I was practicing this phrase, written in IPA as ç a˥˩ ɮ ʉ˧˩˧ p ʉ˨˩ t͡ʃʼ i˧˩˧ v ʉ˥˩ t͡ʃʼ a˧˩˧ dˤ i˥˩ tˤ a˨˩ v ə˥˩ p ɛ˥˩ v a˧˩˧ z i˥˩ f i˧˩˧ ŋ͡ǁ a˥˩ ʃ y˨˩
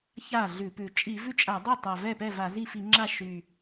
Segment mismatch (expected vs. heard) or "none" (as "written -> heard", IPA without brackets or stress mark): ə˥˩ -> ɛ˥˩